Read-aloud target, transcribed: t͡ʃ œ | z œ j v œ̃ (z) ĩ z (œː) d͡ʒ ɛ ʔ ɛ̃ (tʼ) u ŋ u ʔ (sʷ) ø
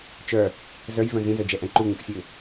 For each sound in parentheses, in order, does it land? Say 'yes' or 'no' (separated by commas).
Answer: yes, no, no, no